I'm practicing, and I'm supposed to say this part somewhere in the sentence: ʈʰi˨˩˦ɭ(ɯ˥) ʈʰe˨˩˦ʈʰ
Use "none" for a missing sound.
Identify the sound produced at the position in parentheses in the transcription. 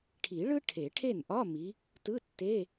ɯ˥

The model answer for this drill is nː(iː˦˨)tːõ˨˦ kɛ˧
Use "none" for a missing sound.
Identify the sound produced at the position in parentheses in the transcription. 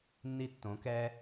i˦˨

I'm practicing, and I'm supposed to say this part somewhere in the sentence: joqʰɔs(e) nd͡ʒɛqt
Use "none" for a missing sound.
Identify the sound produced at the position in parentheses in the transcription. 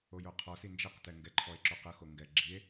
i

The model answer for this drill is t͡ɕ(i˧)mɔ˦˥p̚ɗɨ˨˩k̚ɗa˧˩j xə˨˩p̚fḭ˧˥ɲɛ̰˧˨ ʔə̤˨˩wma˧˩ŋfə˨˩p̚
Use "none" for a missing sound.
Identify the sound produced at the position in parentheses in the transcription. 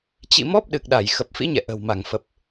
ḭ˧˨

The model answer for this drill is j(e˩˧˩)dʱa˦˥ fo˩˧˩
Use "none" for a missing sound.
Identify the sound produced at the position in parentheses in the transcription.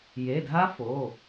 e˩˧˩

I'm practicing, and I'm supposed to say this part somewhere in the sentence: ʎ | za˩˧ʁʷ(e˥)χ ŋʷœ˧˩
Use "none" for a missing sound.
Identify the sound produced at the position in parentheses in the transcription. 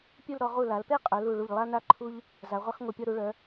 e˥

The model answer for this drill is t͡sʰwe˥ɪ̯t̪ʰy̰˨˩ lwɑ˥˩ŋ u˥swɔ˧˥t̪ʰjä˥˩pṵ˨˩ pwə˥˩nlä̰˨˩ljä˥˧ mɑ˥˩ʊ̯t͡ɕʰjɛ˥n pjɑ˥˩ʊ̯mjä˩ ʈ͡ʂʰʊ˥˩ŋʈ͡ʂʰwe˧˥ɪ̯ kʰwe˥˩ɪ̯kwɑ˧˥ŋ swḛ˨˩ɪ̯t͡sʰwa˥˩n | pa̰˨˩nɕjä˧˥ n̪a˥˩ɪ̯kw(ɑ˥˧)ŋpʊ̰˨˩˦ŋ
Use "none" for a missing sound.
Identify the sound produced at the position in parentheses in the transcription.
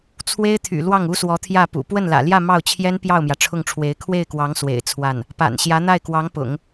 ɑ˧˥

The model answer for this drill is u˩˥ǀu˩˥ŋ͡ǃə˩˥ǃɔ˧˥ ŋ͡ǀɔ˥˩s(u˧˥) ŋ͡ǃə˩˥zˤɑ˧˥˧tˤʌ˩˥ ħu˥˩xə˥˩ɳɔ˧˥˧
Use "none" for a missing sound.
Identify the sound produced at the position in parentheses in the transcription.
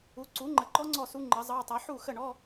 u˧˥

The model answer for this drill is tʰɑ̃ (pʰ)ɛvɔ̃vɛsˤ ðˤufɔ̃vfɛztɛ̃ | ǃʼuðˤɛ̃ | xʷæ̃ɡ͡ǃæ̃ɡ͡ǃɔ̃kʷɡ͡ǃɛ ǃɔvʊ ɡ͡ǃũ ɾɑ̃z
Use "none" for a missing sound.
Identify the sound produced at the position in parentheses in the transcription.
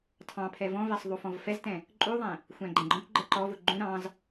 pʰ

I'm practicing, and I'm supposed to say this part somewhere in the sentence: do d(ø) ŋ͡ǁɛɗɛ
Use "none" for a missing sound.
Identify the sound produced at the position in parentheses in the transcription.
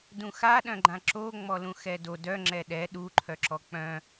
œ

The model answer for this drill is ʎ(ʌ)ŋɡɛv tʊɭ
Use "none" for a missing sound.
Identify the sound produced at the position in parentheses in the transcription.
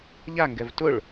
a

